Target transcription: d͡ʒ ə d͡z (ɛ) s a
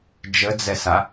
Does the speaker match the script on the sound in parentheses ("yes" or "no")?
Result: yes